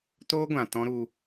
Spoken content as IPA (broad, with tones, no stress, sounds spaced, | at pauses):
t oː˦ ɡʷ ã˨ t ɔ̃˦ ɾ u˧